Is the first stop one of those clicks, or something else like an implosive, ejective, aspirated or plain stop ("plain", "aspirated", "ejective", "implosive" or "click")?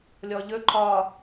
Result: click